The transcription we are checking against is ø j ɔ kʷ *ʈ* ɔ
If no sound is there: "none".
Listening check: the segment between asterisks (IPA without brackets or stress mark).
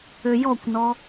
n